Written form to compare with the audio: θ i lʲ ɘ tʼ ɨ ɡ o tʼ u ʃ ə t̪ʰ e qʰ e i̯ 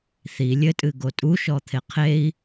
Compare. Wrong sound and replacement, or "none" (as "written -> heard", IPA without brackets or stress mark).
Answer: ə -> ɔ